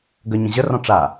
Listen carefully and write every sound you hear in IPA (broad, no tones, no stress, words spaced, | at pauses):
ɡə ɲə̃ʑərɔ̃ ʈ͡ʂa